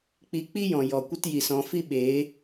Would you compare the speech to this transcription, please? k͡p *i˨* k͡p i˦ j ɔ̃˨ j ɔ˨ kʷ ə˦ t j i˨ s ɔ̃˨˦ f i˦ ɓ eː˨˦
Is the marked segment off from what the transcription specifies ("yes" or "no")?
yes